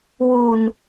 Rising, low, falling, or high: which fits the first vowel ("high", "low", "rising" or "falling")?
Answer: low